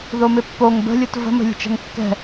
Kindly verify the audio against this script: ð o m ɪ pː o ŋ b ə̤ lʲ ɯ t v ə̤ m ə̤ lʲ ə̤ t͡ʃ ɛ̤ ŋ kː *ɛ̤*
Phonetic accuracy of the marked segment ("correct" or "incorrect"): correct